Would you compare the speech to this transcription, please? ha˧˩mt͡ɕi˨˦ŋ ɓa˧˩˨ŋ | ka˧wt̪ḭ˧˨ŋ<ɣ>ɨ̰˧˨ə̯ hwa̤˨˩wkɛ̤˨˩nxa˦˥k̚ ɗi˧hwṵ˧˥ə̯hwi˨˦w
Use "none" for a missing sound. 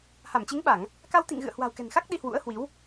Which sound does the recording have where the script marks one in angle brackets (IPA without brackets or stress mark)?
ɣ